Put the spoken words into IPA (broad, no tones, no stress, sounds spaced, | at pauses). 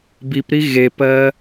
b i p ɾ i ɣ e p ɜː